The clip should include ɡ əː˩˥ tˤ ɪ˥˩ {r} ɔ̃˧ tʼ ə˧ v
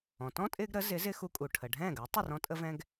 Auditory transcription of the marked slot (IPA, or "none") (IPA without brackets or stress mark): r